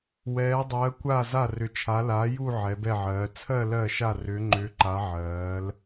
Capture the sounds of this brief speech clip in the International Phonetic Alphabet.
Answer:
w ɛː˨˦ dˤ ɜː˨˦ kʷ a˦˨ z a˦˨ r ʏ˨˦ t͡ʃʰ a˨˦ l a˨˦ j u˦˨ ʕ ɛ˨˦ b ɛ˦˨ ʕ ɜː˨˦ t͡sʰ ɜ˦˨ l ɜ˦˨ ʃ a˦˨ r ʏː˨˦ ŋ͡ǃ ʏː˨˦ ǃ a˨˦ ʕ ɜː˨˦ l

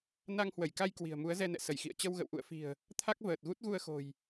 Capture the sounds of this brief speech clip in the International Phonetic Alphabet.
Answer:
n a˧ ŋ h w ə˧˩ j k a˧ j k w i̤˨˩ ə̯ m u˨˦ ə̯ z ɛ˧ n ɛ̰˧˨ s ə˧˩ j x ḭ˧˨ ə̯ t͡ɕ ə˧ w ɣ ə̰˧˨ w ʔ ṵ˧˨ ə̯ f i̤˨˩ ə̯ | t̪ʰ a˦˥ k̚ v əː˨˩ t̚ ɣ u˦˥ t̚ ɣ u˧ ə̯ x o̤˨˩ j

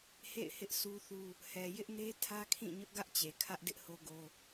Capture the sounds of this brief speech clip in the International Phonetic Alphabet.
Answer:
h ḛ˦˨ ɪ̯ h ɪ˦ ʔ s u˦ θ u˦ | h ɛ˨ j ɪ˦ ʔ n e˦ tʰ ä˦ kʰ ĩ˦˨ ɲ ʊ˦ ʔ ɡ ä˦ ʔ t͡ɕ e˨ kʰ ä˦ ʔ d ɪ˦ ʔ h o˦ ɡ o˦

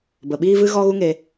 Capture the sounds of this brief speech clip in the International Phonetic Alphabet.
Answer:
b ə˨ ɓ iː˦ v ɨ˦ ɣ ɔ˦ ɣ u˦ ŋ e˧

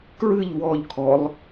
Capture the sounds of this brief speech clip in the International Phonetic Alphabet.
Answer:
k ɹ ɨ ʎ w ɔ ʎ kʰ ɔ lˠ

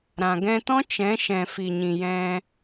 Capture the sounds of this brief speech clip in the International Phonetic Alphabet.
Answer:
ɾ ã˨ ɡ ɛ̃˧ t ɔ̃˦ t͡ʃ ɛ̃˨˦ ʃ ɛ̃˨ f i˨ ɲ ĩ˨ j ɛ̃˧

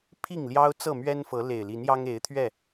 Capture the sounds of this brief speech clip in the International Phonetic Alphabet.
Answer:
pʰ i˥˨ ŋ l j ɑ˦ ʊ̯ t͡s ɤ˥˨ m ɥ ɛ˦ n f ɤ˨˦ l e˨˩ ɪ̯ l i˨˦ n j ɑ˦ ŋ e˨˦ ɪ̯ t̪ʰ ɥ ɛ˥˨

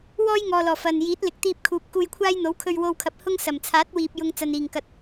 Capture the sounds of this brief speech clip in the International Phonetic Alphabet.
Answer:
w ɔː˥ j ŋ ɔː˨ l ɔː˨˩ f ɐ˨ n j iː˨˥ t̚ l ɪ˨ k̚ t̪ iː˧ p̚ kʰ uː˨ p̚ k uː˧ j kʷʰ aː˥ j n̪ o˨˥ w kʰ ɵ˧ ɥ w o˧ w kʰ ɐ˨ p̚ h ʊ˥ ŋ s ɐ˨˩ m t͡sʰ aː˨˥ t̚ w iː˨ p̚ j ʊ˧ ŋ t͡s ɐ˨ n iː˨˩ ŋ k ɐ˨ t̚

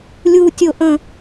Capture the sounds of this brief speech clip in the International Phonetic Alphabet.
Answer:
lʲ u˨ tʲ o˨ ʔ ə̃˨

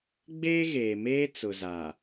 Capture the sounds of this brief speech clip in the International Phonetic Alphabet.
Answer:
ɡ͡b eː˦ ɣ eː˨ m eː˦ t͡s ʊ˨ z a˨

